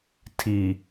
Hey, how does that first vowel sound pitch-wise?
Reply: low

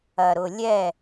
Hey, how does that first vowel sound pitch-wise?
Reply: low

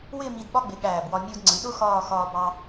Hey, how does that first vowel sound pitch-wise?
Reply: falling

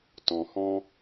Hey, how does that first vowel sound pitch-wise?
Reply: low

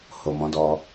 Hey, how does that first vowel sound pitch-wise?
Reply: low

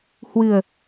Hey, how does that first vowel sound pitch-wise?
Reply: low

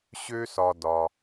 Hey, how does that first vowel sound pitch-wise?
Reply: high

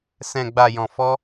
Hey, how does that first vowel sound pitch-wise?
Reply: low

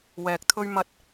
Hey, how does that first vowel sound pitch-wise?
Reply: low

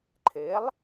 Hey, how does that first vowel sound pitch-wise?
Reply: rising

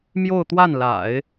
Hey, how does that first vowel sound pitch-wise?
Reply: falling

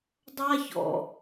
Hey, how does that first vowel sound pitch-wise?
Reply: high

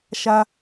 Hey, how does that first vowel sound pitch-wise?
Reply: high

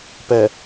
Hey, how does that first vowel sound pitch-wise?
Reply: low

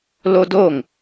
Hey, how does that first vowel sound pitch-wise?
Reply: high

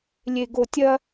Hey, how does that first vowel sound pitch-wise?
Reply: low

